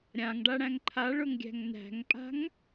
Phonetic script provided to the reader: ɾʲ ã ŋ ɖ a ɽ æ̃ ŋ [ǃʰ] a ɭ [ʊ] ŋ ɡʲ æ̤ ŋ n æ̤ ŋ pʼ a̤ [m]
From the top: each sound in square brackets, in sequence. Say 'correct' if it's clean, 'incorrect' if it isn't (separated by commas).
correct, correct, incorrect